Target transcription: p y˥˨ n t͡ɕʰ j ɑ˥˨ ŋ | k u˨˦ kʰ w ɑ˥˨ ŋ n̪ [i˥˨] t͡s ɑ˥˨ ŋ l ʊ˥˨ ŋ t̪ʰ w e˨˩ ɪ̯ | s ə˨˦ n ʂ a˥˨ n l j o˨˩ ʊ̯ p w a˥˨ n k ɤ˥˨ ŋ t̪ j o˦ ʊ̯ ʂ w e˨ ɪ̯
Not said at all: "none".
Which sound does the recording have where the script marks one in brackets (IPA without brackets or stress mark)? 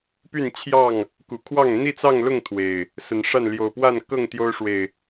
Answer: i˥˨